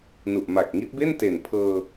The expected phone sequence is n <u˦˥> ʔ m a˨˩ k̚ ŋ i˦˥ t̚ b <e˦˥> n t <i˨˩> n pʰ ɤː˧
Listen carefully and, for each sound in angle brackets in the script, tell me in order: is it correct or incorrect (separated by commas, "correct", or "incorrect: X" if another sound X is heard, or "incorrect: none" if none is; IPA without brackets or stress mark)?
incorrect: u˨˩, incorrect: e˥˩, incorrect: e˨˩